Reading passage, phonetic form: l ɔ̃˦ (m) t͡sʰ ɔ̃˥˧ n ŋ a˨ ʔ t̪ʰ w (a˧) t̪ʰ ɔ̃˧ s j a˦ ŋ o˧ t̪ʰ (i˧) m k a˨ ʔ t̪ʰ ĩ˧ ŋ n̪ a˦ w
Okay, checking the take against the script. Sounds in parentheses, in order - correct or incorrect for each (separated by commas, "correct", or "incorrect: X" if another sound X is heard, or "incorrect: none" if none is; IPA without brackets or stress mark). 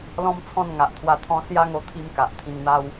correct, correct, correct